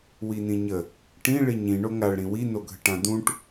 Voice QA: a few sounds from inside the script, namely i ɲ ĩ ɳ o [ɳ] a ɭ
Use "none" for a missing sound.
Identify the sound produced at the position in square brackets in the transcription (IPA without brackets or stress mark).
ŋ